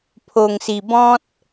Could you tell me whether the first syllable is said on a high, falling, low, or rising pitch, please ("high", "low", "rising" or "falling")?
low